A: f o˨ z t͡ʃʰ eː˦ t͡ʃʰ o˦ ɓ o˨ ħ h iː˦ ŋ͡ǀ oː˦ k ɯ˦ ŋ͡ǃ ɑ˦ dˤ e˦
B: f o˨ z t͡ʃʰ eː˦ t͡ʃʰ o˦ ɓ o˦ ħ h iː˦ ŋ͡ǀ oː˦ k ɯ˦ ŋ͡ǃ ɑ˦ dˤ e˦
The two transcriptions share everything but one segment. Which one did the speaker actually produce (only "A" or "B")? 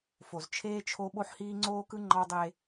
B